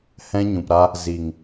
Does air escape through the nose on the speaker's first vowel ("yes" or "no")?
yes